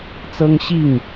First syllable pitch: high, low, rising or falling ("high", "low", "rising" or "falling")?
high